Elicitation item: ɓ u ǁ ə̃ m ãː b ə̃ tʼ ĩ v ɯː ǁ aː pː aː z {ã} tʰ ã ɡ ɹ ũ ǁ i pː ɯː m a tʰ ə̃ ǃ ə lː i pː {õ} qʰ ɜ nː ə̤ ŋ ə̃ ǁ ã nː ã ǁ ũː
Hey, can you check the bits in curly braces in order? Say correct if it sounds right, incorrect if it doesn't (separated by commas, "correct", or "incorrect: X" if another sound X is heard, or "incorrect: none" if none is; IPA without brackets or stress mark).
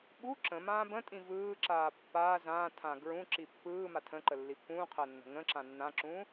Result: incorrect: ãː, incorrect: ũ